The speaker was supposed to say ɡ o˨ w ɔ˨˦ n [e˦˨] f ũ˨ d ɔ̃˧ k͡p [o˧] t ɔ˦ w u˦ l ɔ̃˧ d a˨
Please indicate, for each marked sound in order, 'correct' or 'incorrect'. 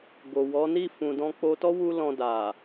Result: incorrect, correct

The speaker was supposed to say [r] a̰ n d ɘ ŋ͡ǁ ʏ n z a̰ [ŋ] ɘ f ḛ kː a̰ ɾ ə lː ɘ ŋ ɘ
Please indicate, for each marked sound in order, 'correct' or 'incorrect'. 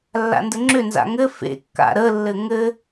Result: incorrect, correct

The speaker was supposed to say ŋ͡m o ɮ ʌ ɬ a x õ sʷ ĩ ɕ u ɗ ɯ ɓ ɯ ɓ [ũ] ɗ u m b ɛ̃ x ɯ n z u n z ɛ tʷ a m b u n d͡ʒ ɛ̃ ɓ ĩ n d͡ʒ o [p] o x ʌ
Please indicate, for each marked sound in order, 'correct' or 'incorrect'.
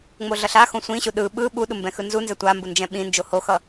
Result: incorrect, incorrect

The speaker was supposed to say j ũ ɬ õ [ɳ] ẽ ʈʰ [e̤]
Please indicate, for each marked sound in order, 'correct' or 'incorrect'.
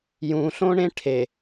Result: correct, incorrect

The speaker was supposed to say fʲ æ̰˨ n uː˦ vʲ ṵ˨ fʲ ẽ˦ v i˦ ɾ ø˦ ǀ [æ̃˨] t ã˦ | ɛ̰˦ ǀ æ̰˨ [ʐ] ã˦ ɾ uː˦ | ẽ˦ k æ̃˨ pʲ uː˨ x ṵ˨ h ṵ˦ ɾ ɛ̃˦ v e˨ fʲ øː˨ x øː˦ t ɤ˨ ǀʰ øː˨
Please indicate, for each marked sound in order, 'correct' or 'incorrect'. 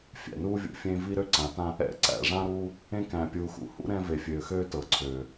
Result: incorrect, correct

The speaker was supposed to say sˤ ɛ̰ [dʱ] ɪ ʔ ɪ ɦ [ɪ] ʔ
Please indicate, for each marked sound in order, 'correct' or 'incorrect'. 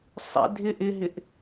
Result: correct, correct

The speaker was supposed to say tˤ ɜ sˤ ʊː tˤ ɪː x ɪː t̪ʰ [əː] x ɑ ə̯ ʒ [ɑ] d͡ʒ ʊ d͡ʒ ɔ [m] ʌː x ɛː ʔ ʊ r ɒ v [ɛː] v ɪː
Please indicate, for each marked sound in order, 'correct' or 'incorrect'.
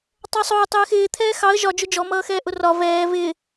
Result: incorrect, incorrect, correct, correct

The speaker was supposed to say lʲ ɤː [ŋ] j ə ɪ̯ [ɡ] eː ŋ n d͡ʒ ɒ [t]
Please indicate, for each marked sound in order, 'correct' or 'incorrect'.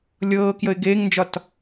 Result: incorrect, correct, correct

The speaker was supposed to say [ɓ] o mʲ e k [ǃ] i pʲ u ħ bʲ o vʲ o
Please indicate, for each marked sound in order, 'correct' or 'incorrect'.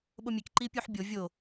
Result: correct, correct

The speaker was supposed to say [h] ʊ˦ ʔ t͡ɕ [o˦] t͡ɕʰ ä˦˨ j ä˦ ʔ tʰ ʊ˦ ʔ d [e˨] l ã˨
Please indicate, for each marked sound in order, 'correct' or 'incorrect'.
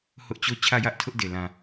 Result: correct, correct, correct

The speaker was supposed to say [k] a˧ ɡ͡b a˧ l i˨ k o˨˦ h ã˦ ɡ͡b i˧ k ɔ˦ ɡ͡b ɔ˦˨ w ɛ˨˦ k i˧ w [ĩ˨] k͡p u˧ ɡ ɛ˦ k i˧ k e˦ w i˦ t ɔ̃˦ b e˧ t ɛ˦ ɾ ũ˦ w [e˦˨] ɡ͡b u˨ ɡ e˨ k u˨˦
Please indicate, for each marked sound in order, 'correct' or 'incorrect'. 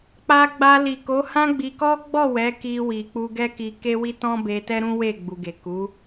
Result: incorrect, incorrect, correct

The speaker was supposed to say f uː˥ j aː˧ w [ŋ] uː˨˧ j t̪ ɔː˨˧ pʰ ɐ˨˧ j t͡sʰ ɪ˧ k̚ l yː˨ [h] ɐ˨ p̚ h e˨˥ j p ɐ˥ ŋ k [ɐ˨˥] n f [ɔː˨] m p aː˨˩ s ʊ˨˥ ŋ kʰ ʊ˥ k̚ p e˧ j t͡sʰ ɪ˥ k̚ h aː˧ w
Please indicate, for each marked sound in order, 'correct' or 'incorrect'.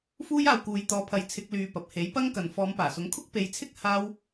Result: incorrect, incorrect, incorrect, incorrect

